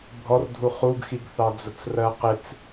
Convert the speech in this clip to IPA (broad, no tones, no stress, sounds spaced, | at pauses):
bʱ ɔ r dʱ u χ u ɡ x i ɡ θ ɑ d͡z ʊ t͡s r ɜ q ɪ t͡s